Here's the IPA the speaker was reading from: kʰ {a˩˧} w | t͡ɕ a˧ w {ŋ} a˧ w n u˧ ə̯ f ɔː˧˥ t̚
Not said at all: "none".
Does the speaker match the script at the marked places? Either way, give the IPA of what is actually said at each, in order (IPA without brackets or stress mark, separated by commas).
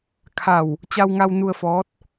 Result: a˧˩, ŋ